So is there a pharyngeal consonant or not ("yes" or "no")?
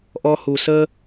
no